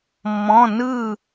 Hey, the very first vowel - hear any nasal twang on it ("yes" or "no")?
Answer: yes